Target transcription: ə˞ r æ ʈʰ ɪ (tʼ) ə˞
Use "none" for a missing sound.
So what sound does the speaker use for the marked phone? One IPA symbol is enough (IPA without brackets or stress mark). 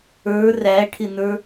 n